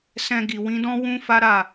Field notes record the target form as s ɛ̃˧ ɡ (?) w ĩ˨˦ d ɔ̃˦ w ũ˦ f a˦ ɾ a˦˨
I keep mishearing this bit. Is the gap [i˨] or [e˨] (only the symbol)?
i˨